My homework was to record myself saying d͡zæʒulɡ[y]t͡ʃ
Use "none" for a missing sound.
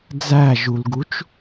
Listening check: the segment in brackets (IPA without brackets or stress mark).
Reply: u